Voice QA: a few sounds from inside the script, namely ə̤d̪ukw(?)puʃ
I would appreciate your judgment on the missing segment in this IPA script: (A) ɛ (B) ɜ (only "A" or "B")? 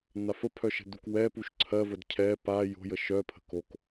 A